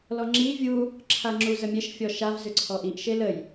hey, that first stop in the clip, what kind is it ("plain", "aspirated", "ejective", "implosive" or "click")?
click